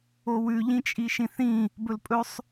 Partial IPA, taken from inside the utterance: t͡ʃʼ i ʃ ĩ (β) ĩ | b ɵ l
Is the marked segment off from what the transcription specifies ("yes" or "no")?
yes